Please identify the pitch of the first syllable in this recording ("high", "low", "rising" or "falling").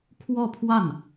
falling